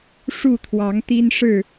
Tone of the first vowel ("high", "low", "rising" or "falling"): falling